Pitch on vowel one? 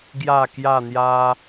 falling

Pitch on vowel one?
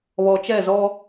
low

